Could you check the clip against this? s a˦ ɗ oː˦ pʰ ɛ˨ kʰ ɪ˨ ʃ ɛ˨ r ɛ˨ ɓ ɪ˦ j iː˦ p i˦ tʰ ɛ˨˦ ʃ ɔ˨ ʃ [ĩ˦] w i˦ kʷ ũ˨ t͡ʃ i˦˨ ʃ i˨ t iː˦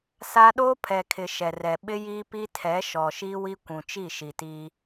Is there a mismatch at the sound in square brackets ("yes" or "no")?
yes